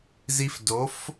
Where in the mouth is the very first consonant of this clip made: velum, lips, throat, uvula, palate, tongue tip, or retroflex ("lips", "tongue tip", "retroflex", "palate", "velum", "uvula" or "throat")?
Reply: tongue tip